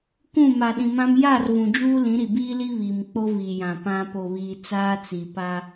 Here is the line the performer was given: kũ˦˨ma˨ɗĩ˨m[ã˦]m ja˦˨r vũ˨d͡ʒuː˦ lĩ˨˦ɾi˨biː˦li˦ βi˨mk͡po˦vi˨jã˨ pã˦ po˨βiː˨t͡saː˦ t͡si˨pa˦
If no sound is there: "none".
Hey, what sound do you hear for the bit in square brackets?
ã˦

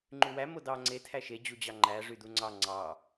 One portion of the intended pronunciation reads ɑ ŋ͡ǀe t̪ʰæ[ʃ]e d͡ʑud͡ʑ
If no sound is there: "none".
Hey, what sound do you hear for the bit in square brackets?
ʃ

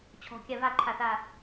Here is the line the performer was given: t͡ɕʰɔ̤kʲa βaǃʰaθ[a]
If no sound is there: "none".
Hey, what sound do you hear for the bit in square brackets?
a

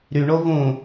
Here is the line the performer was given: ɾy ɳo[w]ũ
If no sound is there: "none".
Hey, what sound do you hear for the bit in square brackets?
v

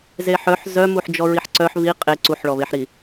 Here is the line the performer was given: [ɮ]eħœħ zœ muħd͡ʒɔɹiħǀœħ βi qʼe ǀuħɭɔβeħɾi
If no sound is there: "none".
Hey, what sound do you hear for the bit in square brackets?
z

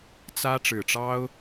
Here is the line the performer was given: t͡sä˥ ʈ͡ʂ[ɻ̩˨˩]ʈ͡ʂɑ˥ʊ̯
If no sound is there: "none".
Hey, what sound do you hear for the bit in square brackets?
ɻ̩˨˩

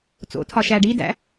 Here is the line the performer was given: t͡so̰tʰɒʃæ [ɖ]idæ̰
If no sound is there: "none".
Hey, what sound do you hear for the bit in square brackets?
ɖ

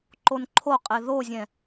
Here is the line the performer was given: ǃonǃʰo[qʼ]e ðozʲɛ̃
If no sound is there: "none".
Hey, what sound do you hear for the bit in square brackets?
qʼ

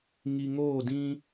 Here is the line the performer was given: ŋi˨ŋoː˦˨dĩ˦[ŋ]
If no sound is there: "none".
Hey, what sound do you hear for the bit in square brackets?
none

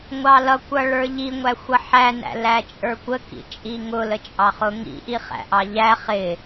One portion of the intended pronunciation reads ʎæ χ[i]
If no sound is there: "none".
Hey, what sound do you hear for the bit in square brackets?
ɪ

